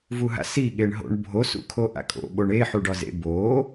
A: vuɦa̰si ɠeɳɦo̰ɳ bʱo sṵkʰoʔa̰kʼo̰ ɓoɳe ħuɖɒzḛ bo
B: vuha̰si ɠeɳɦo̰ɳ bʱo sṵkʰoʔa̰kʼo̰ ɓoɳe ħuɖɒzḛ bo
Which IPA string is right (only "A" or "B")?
A